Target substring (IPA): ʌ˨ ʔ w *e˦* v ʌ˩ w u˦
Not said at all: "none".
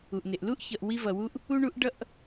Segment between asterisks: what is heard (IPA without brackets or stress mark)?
i˦